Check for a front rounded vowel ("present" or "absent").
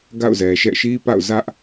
absent